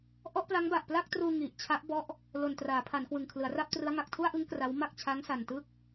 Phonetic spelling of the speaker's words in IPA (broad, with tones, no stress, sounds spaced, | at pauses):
ʔ ɔ˥˩ ʔ p l a˦˥ ŋ b a˨˩ ʔ p l a˥˩ k̚ t r uː˧ ŋ i˨˩ ʔ t͡ɕʰ a˦˥ ʔ b ɔ˦˥ ʔ | l o˨˩ n t r aː˩˦ pʰ a˩˦ n k w ɯ˨˩ ŋ kʰ l ɯ˩˦ a̯ r a˥˩ p̚ t r ɯ˦˥ a̯ ŋ a˨˩ k̚ tʰ u˥˩ a̯ ʔ ɯ˦˥ ŋ k r a˦˥ w m a˥˩ k̚ t͡ɕʰ a˦˥ ŋ s a˨˩ n t ɯ˥˩ k̚